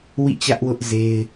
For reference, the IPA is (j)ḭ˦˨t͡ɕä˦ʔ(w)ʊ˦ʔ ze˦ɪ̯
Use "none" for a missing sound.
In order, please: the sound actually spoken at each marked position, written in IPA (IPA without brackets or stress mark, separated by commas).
w, w